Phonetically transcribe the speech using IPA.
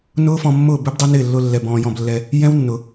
nʊː˦fɔ̃˧ mːʊː˦˨bʏ˦bdˤʏ˦nɪː˦˨ lːʊ˧lːɛ˨ bɔ̃ː˧jɔ̃˧blːɛ˧ | jɛ̃˦wnːʊ˨

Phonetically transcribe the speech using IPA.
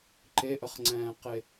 ǃeʔəχŋ͡ǀɛ̃ːqe

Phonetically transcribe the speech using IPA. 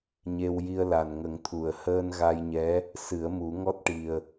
ɲe˧wji˧ə̯la˨˩nŋə˨˩˦ŋ t̪ʰu˨˩˨ə̯ həː˧nɣa˧jɲɛ˧˥ | sɨ˨˩˦ə̯mu˨˩˦ŋɔ˦˥t̚ ʈi˨˩ə̯

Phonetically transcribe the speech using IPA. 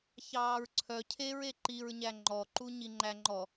çɑːɹǀʰœ cʰeɹ eǃiɹɲæ ŋ͡ǃɔǃu ɲiŋ͡ǃæŋ͡ǃɔ

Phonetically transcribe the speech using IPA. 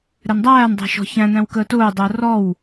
ɾɛndˤæːn dˤɛ̤ʃɔ̤çæ̃ n̪æ̃wkəːtʊː dˤəːrɔw

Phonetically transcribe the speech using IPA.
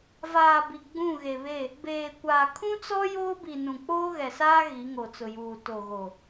vaː˨ bi˨ɡ͡bũ˦˨ɣe˨βe˦˨ | beː˨kʷaː˨ kʰũ˦t͡sɔ˦ joː˦bi˨ nũ˨ k͡poː˦ɣɛ˨saː˦ ɣi˨˦ŋo˨t͡sʊ˨juː˨ to˨ɣo˨

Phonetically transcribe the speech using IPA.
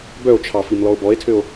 bœo̯t͡ʃʰɑfimlɔo̯ bɔe̯tʰøo̯

